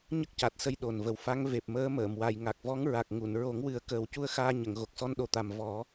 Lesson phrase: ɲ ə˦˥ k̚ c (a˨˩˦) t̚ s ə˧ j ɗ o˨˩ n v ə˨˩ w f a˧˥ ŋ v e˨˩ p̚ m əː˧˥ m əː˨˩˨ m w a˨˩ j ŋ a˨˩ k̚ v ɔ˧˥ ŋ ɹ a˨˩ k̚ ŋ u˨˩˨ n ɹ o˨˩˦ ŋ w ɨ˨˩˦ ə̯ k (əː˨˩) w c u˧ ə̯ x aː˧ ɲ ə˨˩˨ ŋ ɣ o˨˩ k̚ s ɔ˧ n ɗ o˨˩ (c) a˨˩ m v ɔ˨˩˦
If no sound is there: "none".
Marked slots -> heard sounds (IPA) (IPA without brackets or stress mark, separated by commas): a˨˩, əː˨˩, t̪